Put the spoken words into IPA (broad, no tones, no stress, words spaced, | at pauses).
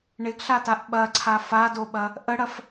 ɳɪɡɬataʔ ɓɐǀʰa fadoɓɐ | ʔəɽɐf